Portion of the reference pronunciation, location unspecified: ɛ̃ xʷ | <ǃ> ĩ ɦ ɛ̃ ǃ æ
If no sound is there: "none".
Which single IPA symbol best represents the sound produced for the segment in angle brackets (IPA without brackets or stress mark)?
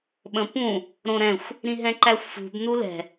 ɾ